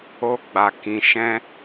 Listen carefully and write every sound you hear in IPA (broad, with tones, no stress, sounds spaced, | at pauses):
o˧ ɡ͡b a˨ k ĩ˨ ʃ ɛ̃˧